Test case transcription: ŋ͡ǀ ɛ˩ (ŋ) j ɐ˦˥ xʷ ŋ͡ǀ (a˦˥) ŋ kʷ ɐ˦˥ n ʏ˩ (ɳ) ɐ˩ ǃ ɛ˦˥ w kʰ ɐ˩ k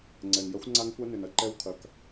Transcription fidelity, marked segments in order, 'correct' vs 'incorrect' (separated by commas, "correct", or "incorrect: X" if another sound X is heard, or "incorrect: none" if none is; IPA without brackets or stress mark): correct, correct, incorrect: n